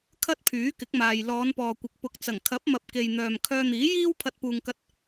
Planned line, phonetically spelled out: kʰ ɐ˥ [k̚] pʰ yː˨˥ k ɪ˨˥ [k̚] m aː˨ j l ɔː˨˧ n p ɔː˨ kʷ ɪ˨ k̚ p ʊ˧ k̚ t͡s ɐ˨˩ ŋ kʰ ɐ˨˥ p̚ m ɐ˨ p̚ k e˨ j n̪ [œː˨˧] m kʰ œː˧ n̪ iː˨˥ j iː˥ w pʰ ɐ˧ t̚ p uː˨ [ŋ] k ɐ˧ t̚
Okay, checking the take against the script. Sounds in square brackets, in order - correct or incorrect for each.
incorrect: t̚, correct, incorrect: œː˨, correct

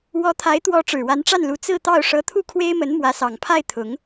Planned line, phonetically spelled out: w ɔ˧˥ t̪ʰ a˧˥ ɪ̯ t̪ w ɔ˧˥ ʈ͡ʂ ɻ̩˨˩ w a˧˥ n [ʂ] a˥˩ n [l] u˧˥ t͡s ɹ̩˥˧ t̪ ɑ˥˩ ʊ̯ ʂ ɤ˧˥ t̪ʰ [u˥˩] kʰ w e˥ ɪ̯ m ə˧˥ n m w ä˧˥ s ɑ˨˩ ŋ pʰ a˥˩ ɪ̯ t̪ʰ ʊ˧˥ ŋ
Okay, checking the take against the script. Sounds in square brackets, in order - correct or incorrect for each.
incorrect: ʈ͡ʂ, correct, correct

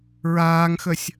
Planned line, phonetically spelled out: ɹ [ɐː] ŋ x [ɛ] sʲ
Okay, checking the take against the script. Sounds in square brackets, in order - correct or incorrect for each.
incorrect: aː, incorrect: ə

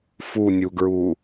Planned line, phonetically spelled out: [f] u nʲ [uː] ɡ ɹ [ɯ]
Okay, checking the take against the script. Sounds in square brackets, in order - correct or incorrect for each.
correct, incorrect: u, incorrect: u

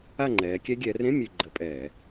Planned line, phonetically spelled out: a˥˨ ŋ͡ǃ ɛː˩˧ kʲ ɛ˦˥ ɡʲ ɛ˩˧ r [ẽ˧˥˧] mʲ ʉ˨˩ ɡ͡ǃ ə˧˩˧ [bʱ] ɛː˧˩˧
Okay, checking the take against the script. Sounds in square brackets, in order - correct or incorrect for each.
correct, incorrect: pʼ

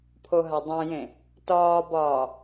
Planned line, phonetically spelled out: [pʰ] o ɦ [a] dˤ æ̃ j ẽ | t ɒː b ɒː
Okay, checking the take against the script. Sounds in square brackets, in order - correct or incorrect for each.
correct, correct

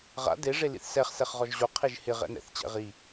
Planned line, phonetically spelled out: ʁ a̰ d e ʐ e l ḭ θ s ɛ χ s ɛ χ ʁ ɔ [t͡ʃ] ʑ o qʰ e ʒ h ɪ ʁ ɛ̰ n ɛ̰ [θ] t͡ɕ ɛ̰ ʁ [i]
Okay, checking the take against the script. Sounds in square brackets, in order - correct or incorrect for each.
incorrect: ʒ, correct, correct

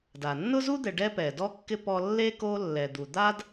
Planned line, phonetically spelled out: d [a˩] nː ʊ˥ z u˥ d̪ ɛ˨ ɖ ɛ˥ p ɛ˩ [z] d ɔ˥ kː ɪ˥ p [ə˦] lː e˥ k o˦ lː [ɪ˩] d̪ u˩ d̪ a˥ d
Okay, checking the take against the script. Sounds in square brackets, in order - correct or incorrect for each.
correct, incorrect: none, incorrect: ɔ˦, incorrect: ɛ˩

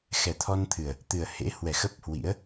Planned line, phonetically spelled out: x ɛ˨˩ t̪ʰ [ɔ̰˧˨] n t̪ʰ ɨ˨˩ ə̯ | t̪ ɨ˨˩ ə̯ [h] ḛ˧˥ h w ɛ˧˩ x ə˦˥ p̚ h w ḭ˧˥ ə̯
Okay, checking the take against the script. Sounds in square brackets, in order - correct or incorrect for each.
incorrect: ɔ˧, correct

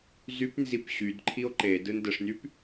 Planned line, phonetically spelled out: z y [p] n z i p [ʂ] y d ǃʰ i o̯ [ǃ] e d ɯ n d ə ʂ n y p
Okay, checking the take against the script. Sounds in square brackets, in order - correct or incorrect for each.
correct, incorrect: ɕ, correct

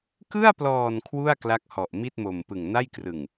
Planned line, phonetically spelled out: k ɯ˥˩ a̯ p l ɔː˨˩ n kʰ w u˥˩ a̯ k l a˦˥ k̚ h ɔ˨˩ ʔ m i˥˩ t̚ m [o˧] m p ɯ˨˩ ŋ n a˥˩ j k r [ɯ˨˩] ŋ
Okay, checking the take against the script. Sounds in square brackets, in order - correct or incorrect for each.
incorrect: o˨˩, correct

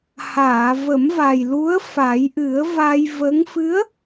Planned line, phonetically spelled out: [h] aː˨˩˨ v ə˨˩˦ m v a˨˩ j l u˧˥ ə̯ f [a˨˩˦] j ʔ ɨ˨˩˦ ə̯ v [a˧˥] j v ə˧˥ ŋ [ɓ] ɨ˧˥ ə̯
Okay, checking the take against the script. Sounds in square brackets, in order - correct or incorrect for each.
correct, correct, incorrect: a˧, incorrect: f

